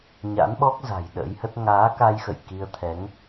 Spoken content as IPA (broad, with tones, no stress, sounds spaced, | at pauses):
ɲ a̰˧˥ n ɓ ɔ˦˥ k̚ z a̤˨˩ j ɗ ə̰˧˥ j h ə˦˥ t̚ ŋ aː˨˦ k a˧ j x ə̰˧˨ j k i˧ ə̯ t̪ʰ ɛ˨˦ ŋ